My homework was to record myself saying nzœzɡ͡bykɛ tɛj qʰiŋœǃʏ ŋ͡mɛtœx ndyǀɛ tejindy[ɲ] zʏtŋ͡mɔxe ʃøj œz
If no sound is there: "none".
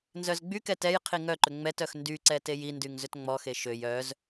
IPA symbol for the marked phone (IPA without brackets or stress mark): ŋ